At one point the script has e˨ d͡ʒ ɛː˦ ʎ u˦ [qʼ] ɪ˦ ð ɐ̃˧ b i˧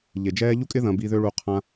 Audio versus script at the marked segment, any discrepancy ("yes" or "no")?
yes